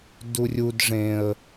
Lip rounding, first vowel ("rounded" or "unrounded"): rounded